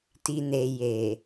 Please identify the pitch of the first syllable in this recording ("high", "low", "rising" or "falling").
low